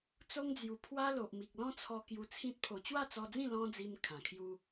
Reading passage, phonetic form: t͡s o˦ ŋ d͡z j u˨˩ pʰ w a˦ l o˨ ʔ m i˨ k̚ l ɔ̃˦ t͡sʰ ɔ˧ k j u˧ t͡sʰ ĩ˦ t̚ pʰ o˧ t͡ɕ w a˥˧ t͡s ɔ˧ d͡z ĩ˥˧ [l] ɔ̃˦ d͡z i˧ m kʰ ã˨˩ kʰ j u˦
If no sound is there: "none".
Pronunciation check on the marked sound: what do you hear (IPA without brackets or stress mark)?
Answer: l